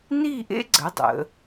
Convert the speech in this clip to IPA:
n i˥˧ ʔ ḛ˥ ɡ͡ǀ ə˩˧ dˤ ə̰˩˧

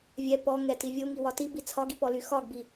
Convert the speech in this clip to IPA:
vʲ ɛ p ɔ ŋ ɛ t i vʲ o ŋ i w ɒ t i b i t͡sʰ ɒ ɡ i p ɔ l y x ɒ ɡ b i

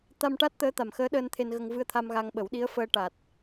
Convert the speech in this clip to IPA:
t̪ a˧ m ʈ a˦˥ t̚ t̪ əː˧˥ t̪ a˨˩ m x əː˧˥ ɗ əː˧ n t̪ʰ e˧ n ɣ ə˧ ŋ v ɨ˧ ə̯ t̪ʰ a˧ m ɣ a˧ ŋ ɓ ə˨˩˦ w ɗ i˧˥ ə̯ f əː˧ ʈ a˨˩ t̚

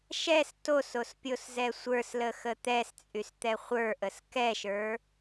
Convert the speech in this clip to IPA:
ʃ ɛ s t o s o s pʲ o s z ɛ sʷ ə˞ s l ə x ə t̪ ɛ s t͡sʼ y s t̪ ɛ χʷ ə˞ ʔ ə s k ɛ ʃ ə˞

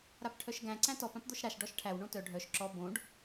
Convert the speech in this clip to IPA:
ɾ a p ʈʰ œ ʃ ɡ æ̃ ǀ æ̃ t ɔ p ã p d̪ o ʃ ɾ a ʃ ɖ ɔ ʃ ʈʰ æ w ɳ õ t œ ɖʱ œ ʃ ǁ ɔ b õ ɖ

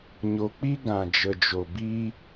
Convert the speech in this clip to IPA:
ɲ o˧ k͡p i˦ ɡ ã˨ d͡ʒ ə˨ d͡ʒ o˨ b i˧

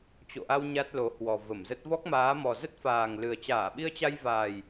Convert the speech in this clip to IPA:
t͡ɕ o̰˧˨ ʔ a˧ w ɲ a˦˥ t̚ l o˨˦ h w ɔ˨˩ v ə˧˩ m z ə˦˥ t̚ v ɔ˦˥ k̚ m aː˨˦ m ɔ˨˩ z ə˦˥ t̚ f aː˨˩ ŋ l ɨ˨˩ ə̯ t͡ɕ aː˧˩ ɓ i˧ ə̯ t͡ɕ a˧ j v aː˨˩ j

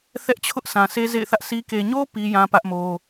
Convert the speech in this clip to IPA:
θ ɛ˦ ʔ t͡ɕʰ ʊ˦ ʔ sʰ ã˨ sʰ e˦ z ḛ˦˨ ɪ̯ θ ä˦ ʔ sʰ i˦ k e˨ ɲ o˦ p i˦ j ã˦ p ä˦ ʔ m o˦

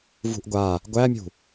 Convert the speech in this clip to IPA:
v ṳ ʔ ɡʷ a | ɡʷ æ mʲ ṳ

